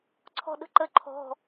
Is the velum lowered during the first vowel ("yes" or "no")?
no